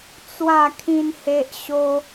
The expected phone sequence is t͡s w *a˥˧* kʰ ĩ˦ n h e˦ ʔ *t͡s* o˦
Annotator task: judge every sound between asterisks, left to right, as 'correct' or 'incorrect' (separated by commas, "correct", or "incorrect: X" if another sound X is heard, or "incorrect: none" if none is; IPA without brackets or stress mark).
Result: correct, incorrect: ɕ